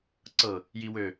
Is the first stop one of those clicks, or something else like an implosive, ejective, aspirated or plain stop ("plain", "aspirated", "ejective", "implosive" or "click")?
click